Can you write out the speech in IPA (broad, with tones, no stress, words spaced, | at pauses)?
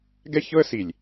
ɡɛ˦çɤ˦ə̯si˨lʲ